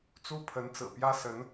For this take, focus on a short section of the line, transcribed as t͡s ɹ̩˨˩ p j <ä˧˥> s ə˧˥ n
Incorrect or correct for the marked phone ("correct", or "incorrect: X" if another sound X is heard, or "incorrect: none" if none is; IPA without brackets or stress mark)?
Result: incorrect: ä˥